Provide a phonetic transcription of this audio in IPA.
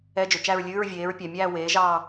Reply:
ɛ˧˥˧d͡ʒɵ˨ t͡ʃæ˦˨ɹlʲʉː˧˥˧ɹvʲeː˩˥ɹpʲæ˨ mʲæː˦˨weː˩˥ʒɑː˦˨

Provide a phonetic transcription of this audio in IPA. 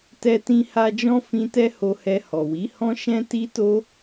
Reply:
tɛ˧tĩ˧ha˧d͡ʒɔ̃˦ fĩ˦tɛ˦ ho˧hɛ˧ hɔ˨wi˨˦hɔ̃˦ ʃɛ̃˦ti˦to˦

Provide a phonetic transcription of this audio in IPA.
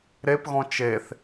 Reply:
ɾepɣɔ̃ t͡ʃeθ

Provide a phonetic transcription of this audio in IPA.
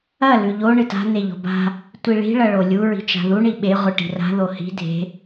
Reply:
ɐ lʉʎo ɳɨta̤ n̪eʎo̤ba̤ | tʷiɭi̤ ɭɐɭolʲu ɹi̤t͡ʃa̤ðu ɳiɓe ʁʷɨʈi̤ra̤ ðohi̤ dʱe̤

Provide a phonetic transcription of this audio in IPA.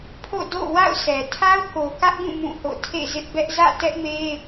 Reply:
pʰo̰˦˨do̰˦˨ wa̰˦˨ʊ̯sʰɛ˨ tʰa˦ʊ̯ko˨kä˦ʔɡũ˦˨ mũ˦˨ho̰˦˨ tʰḛ˦˨zɪ˦ʔbɛ˦ʔ zä̰˦˨tɛ˦ʔme˦

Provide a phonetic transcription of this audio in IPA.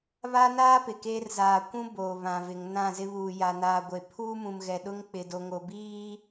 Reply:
βa˦naː˦ pɪ˨keː˦r zaː˨kʷũ˦ boː˨βã˨vɪ˨ŋ nã˦˨zɪ˦βuː˨ ja˨naː˨ɡʷe˨ pʰuː˦mũ˨m ɣɛ˨ɗʊ˦ŋ k͡pɪ˨do˨ŋo˨ biː˦

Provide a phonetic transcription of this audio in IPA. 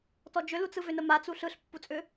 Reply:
tɔd͡ʒʏlut͡sɯ vʏnəma t͡suɬɯɬ pːut͡sʼʏ

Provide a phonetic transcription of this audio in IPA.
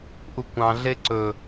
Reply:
ʔukʷɑ̃ɮe ǀɵ

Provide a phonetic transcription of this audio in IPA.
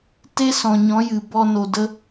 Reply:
te˦sɔ̃˨ɲɔ̃˨˦ jɨ˨ bɔ˧no˨də˦

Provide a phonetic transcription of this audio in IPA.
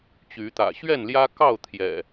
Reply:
t͡ɕy˨˦t̪ä̰˨˩ ɕɥɛ˥˨nljä˦kɑ˥˨ʊ̯ t̪ʰjɛ̰˨˩

